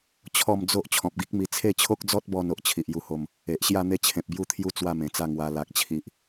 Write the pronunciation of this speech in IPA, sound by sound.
t͡ɕʰ ɔ˥˧ m d͡z o˦ ʔ t͡ɕʰ ɔ̃˨ p̚ ɡ i˦ k̚ m i˧ t͡sʰ e˥˧ t͡ɕʰ o˦ k̚ d͡z ɔ˦ t̚ b ɔ˧ n o˨ ʔ t͡ɕʰ i˨ ʔ j u˦ h o˥˧ m | e˨ ʔ ɕ j a˥˧ n̪ e˦ t͡ɕʰ ẽ˨ p̚ b j u˥˧ t̪ʰ j u˦ t͡s w a˥˧ m ẽ˨˩ t͡s a˥˧ ŋ w a˧ l a˨ k̚ t͡ɕʰ i˨ ʔ

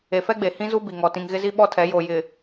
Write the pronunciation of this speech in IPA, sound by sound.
e˨ f ɛ˦ ɡ͡b e˨ h ĩ˦ z u˦ b i˨ ŋ ɔ˨ t ĩ˨ ŋ ɣ ɪ˦ z i˦ ɓ ɔ˦ tʰ ɛ˨˦ j o˨ j ɪ˨

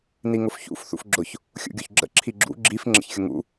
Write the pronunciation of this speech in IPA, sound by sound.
n i ŋ ʊ f ç ṵ f θ ṵ f ɡ͡ǁ ʊ ç | xʲ ṵ ɡʲ o ç ɡ͡ǁ ə̰ ǁʰ i ɡ͡ǁ ṵ ɡ͡ǁ i f ŋ͡ǁ ə̰ ç xʲ ʊ ŋ ṵ

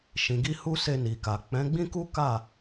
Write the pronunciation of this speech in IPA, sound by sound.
ʃ ĩ˨ ɡ i˧ h u˧ s e˧ n i˨ k a˨ k͡p ɛ̃˨˦ ɡ͡b ĩ˦ k u˦ k a˦˨

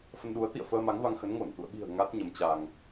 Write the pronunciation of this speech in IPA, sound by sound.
f ə˧ n ɗ u˨˦ ə̯ t̪ ḭ˧˨ ə̯ f əː˧ m a˨˦ ŋ v a˧ ŋ x ə˨˦ n ŋ o˧˩ n t̪ ṵ˧˨ ə̯ ɓ i̤˨˩ ə̯ ŋ a˦˥ t̚ ɲ ə˨˦ m t͡ɕ a˧ ŋ

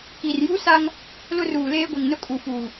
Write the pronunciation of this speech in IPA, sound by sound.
k i˨ r j u˦ s a˦ ŋ | l ʊ˦ r uː˨ l eː˦ ɡʷ ɛ˨ ŋ n ʊ˦ kʼ u˨ f uː˨

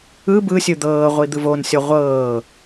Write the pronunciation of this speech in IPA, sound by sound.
ɯ b ɯ sʲ ɯ d̪ ɤː ʁʷ i d̪ ɯ v o n sʲ ɔ ʁʷ ɤː

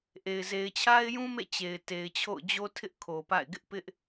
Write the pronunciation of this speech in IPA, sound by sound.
ʔ e˨ ɪ̯ z e˨ ɪ̯ t͡ɕʰ a˦ ɪ̯ j ũ˦ m ḛ˦˨ t͡ɕ e˨ ɪ̯ t e˨ ɪ̯ t͡ɕʰ o̰˦˨ ʊ̯ d͡ʑ o˦ tʰ ɪ˦ ʔ kʰ o˨ p a̰˦˨ ɪ̯ ɡ ɪ˦ ʔ p ɪ˦ ʔ

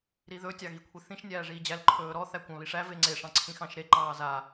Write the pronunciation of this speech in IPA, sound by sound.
ɾ i ð ɵ tʲ ɑ ɣ i kʷʰ i θ ĩ ʃ nʲ æː ʐ iː d͡ʑ æ l ǃʰ ɵː ɾ ɔ θ æ kʷ ɑ̃ β i ʂ æ v e ŋ͡ǀ e ʂ ɑ̃ ǀʰ ĩ x ɑ̃ ʃ ɾ e ǃ ɑː z a

